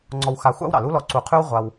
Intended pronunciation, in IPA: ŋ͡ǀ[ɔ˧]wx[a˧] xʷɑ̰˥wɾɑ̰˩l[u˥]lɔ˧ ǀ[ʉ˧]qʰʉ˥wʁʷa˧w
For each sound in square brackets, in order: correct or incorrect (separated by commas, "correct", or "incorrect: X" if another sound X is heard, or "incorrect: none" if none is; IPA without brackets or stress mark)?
correct, correct, correct, incorrect: u˧